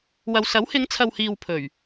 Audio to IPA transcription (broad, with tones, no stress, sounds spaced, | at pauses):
w ɐ˨ w s ɐ˨˥ w h ɪ˨˧ ŋ t͡sʰ ɐ˨ w h iː˨ w pʰ ɵ˨˩ ɥ